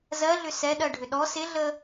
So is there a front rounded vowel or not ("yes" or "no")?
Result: yes